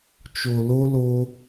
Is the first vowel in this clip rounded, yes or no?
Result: yes